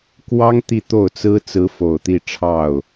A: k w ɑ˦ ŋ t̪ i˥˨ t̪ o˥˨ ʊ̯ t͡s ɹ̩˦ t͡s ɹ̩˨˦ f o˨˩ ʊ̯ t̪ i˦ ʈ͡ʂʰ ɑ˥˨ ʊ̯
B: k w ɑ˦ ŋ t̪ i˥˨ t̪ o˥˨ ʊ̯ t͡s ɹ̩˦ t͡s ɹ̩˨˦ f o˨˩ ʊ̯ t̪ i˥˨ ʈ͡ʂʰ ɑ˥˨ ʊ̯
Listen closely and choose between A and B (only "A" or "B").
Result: B